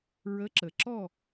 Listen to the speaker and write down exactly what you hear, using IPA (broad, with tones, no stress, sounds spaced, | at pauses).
ɹ ə˨˥ ǁ ə˩ ǁ ɔ˦˨